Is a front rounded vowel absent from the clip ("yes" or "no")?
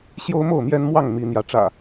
yes